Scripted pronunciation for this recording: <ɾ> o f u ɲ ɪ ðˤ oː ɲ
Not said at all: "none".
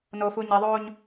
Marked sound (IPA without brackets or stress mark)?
n